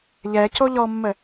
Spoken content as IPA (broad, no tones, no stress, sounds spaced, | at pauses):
ʎ ɛ c o ʎ ɔ mː ə